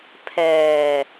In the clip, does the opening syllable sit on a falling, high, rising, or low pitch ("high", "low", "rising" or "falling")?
low